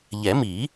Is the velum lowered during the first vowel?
no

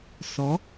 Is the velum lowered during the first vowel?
no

